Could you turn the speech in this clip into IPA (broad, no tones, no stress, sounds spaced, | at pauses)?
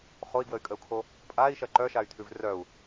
χ o i̯ ɡ w ə y̯ kʼ ə u̯ kʰ o | pʼ a i̯ ʃ ɐ ǃ œ ʃ a y̯ tʰ ʉ v r œ u̯